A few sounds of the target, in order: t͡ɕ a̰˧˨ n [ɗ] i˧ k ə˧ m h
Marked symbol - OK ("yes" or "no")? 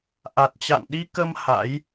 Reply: yes